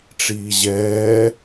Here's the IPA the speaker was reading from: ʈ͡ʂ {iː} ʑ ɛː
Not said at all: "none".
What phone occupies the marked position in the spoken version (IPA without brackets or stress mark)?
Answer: iː